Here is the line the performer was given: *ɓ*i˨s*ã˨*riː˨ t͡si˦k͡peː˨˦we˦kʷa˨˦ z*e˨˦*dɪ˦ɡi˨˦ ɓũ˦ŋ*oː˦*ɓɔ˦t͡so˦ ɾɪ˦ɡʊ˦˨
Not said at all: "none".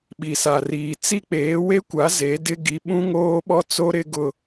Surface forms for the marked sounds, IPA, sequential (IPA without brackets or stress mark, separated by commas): ɓ, a˨, e˨˦, oː˦